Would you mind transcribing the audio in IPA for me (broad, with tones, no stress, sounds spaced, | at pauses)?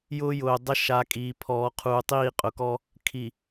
j ʊː˦ j ʊː˨ dˤ ə˦ ʃ a˨˦ kʼ iː˨ pʰ ɔː˨ qʰ uː˨ tˤ iː˦˨ qʼ ʊ˨ k ɔ˦ | kʰ i˨